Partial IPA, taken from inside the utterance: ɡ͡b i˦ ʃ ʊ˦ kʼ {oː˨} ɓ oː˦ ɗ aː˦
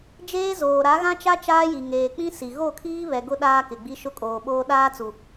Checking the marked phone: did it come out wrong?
no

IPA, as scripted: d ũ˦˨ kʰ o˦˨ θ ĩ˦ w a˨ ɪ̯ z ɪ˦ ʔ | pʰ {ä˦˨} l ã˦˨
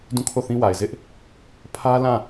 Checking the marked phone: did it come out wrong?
yes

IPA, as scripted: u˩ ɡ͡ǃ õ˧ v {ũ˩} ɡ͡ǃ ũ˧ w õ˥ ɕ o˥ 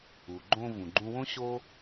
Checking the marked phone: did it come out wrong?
no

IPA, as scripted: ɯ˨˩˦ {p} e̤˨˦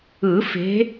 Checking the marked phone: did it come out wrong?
yes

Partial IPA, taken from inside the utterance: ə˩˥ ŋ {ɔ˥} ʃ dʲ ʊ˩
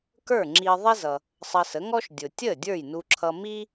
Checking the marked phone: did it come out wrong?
no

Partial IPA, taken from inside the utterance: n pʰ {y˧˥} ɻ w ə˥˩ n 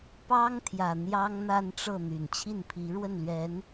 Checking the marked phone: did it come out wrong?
yes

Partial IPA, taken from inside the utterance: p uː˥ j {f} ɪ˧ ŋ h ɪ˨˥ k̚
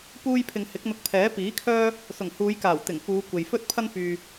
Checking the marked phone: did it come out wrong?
yes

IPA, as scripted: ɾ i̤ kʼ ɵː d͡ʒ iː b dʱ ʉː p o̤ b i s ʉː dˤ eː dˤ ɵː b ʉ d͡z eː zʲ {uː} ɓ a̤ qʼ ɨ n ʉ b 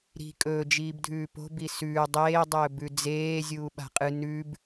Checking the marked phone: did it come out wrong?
no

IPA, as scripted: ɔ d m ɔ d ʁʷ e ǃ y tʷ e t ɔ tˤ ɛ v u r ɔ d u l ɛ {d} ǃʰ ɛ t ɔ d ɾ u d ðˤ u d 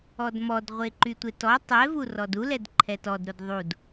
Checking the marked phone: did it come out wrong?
no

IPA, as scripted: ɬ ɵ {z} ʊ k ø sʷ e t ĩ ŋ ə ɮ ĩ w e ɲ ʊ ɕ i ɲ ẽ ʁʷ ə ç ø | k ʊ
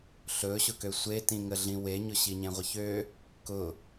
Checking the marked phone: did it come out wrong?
yes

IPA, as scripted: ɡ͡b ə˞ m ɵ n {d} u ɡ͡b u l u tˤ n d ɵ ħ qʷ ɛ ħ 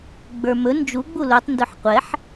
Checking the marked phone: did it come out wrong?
yes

